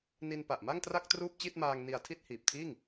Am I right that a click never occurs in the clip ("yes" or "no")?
yes